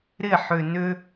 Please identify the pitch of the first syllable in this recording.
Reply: falling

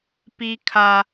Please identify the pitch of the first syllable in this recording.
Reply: high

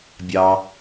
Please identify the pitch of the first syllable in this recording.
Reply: low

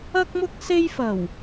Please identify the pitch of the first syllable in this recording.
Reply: high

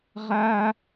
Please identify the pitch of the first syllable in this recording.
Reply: high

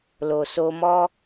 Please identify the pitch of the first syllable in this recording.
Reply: low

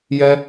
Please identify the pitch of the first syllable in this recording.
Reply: high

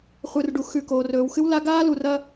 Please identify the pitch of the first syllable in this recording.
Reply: low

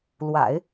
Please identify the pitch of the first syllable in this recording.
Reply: low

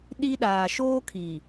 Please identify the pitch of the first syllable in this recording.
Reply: high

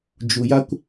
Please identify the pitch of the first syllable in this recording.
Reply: low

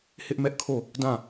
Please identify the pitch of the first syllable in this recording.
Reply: high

